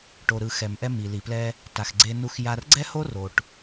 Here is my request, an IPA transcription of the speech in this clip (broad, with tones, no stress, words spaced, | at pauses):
ʈo˩ɾɯ˩ xɛ˩mʔɛ˧ mi˩li˩plɛ˧ | ta˩xɡ͡ǀe˧nu˧x ja˧rɡ͡ǀɛ˥ho˥ro˩ʈ